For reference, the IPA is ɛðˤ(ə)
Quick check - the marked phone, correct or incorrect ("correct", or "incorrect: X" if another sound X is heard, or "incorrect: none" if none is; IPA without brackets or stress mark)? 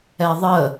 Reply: correct